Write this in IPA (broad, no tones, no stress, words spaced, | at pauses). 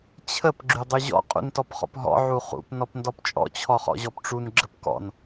t͡ɕʰəp ɡ͡ǁydˤyʑɔ̰ qʼṵntɔpχɔ̰pɦɔ̰ ʕuχṵp nɔpndɔpt͡ʃʼɔ̰ t͡ɕʰɔχɔ̰ʑɔpʈ͡ʂun ɡ͡ǁəpkɔ̰n